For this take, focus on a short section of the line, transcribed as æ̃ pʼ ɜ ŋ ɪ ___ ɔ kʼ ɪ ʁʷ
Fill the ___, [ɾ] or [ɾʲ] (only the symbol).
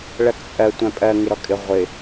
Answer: ɾ